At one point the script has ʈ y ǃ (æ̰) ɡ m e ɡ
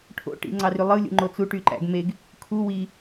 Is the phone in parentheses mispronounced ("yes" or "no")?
no